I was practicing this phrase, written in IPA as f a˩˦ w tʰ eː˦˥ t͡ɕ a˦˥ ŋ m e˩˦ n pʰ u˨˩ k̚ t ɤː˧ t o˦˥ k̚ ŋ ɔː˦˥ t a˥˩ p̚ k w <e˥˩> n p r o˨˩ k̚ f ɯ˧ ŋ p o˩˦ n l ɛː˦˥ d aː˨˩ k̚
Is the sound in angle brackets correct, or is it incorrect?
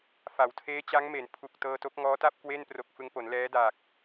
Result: correct